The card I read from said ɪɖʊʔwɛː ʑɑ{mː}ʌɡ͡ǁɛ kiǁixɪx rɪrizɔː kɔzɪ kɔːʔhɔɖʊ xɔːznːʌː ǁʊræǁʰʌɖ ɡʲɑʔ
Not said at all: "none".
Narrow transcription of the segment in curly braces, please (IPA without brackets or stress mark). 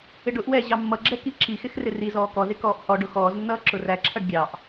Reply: mː